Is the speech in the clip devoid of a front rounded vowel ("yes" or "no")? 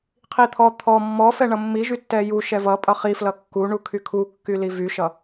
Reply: no